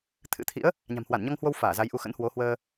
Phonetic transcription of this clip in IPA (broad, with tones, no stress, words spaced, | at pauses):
t̪ʰɨ̰˧˥t̪ʰḭ˧˥ə̯ | ɲa̤˨˩mhwa˧˩nɲɔ˧ŋhwo˧w faː˧˩za˨˦jʔu˨˦ xə̰˧˥nhwo˨˦hwəː˧